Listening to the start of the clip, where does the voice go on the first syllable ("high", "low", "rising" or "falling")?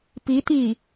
rising